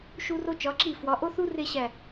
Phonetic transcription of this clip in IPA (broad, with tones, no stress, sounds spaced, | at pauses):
ʃ u˧ r o˧ t͡ʃ ɒ˩˧ ǁ i˧˩ f w ɒ˩˧ ʔ o˥ θ u˥ r e˥˧ ɕ æ˧˩